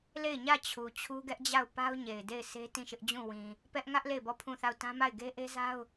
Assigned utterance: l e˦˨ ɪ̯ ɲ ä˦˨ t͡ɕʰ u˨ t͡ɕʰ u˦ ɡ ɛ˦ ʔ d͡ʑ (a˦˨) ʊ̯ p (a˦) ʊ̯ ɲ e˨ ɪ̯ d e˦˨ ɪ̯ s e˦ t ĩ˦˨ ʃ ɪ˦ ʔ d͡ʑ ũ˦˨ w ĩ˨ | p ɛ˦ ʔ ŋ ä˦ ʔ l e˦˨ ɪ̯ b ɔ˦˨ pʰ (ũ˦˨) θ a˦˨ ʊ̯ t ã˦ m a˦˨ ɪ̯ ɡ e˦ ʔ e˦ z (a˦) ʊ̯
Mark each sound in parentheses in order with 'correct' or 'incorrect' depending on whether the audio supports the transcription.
correct, correct, correct, correct

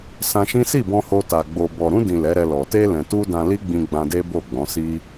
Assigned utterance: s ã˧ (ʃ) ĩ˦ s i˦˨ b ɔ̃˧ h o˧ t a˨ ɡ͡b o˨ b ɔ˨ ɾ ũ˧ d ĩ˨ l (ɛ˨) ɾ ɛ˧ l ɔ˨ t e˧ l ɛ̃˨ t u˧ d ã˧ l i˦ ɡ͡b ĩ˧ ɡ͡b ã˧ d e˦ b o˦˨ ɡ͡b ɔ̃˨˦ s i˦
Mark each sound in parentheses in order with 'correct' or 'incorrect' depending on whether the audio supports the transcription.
correct, incorrect

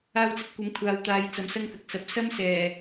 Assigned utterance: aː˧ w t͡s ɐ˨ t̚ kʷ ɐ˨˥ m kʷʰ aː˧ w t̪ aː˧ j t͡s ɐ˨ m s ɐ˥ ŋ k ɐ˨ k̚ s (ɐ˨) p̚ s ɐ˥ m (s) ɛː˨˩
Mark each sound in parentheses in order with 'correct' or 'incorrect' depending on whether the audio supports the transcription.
incorrect, correct

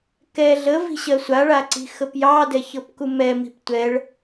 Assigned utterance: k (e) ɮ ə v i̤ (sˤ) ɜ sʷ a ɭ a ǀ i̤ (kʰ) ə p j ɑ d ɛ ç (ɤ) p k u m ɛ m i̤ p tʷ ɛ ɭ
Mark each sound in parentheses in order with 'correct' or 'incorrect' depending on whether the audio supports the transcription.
incorrect, incorrect, incorrect, correct

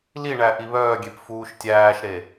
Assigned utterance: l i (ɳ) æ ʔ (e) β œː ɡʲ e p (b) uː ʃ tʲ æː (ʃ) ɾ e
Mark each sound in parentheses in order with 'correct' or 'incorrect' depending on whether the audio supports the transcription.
correct, incorrect, incorrect, correct

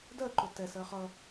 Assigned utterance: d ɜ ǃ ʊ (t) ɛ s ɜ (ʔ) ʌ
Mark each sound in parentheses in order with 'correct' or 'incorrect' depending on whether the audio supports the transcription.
correct, incorrect

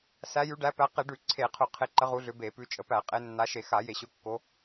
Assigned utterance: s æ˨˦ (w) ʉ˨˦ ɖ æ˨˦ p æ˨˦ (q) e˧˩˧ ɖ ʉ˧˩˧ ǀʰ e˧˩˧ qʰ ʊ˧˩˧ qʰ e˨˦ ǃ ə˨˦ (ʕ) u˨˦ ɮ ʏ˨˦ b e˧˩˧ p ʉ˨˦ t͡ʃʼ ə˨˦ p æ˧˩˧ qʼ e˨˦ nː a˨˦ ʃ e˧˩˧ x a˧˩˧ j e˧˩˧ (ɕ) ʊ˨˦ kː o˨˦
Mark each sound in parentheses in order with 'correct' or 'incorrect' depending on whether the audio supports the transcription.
incorrect, correct, incorrect, correct

